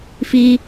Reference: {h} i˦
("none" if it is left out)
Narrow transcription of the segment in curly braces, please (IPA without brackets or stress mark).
f